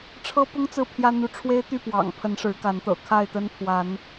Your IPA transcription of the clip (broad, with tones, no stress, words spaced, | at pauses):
ʈ͡ʂʰɤ˦pʊ˦ŋ t͡sɹ̩˥˨pʰjä˦ n̪u˨˦ʈ͡ʂʰwe˦ɪ̯t̪y˥˨ pwɑ̰˨˩ŋ pʰə˨˦nʂɻ̩˨˦ka˨˦nt̪ɤ̰˨˩ kʰa˥˨ɪ̯t̪ə˦n pʰwa˨˦n